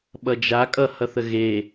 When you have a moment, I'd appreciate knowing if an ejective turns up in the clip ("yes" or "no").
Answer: yes